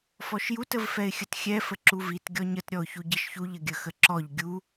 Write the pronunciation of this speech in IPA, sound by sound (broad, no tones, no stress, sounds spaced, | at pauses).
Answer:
f ɔ ʃ j u t ə v f ɛ ɪ̯ xʲ ə t xʲ ɛ f ə ǁ u v i t ɡʲ ɔ ɲ ə t ɾʲ ɔ ʊ̯ ç u ɟ i ʃ ç u ʎ ə ɡʲ ə x ə ǁ ɔ ʎ ɡʲ u